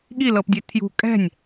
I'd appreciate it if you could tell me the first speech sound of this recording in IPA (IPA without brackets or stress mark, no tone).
ɠ